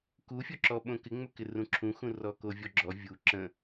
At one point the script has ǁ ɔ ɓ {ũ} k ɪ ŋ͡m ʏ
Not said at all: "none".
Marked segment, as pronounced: õ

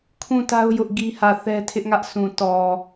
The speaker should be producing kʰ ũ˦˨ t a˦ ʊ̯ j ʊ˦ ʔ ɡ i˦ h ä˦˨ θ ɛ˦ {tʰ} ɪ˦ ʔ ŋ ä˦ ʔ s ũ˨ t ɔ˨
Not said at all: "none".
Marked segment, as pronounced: tʰ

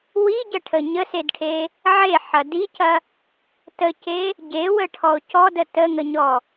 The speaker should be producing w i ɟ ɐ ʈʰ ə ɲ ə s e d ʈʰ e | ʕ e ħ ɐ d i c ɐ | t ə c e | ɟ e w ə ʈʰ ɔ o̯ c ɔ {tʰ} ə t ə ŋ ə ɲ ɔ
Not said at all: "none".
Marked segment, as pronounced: d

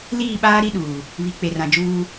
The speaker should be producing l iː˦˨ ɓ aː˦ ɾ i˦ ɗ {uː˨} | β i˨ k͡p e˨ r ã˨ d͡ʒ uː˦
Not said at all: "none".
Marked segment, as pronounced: uː˨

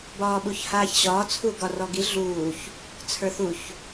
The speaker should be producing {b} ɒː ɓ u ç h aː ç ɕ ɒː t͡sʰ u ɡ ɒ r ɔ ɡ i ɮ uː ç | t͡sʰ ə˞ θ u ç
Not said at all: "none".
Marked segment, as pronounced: b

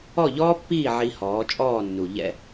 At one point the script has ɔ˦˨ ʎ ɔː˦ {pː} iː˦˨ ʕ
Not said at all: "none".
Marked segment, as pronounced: pː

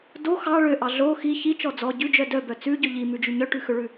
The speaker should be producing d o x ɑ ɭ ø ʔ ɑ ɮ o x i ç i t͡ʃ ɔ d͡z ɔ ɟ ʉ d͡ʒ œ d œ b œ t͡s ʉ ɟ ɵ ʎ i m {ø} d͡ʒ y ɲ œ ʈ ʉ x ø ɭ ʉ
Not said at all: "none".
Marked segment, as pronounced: ʉ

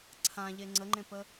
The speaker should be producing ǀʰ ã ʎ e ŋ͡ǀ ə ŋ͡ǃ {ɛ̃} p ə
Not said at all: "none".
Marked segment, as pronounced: ẽ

